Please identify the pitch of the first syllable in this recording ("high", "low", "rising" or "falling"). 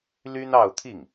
high